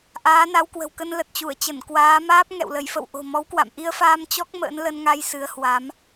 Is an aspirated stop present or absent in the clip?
absent